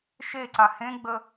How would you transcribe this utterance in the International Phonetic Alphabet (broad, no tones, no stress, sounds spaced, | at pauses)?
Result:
ʃ e ǀ a h ẽ ɡ͡b ə